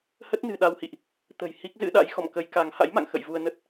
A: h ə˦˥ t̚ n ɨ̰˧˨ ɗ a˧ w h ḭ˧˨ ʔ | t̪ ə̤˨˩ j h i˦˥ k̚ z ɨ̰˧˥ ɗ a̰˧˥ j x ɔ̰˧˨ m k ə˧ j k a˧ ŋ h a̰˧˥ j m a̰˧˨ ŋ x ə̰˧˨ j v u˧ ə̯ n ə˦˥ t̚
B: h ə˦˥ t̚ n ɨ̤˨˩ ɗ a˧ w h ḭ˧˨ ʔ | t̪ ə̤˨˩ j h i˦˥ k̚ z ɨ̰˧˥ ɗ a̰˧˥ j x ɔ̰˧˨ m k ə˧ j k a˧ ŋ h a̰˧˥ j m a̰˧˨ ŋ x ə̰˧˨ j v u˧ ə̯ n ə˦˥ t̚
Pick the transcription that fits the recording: B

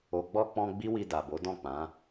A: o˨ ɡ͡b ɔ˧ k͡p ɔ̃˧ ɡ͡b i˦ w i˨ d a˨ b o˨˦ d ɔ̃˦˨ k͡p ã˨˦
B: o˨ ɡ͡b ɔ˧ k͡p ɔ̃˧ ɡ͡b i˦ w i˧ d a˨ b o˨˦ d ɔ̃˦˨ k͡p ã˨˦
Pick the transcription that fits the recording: B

